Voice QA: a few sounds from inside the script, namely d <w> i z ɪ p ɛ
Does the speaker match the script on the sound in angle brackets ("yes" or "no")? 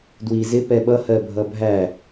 yes